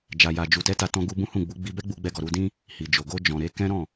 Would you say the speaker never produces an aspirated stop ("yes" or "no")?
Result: yes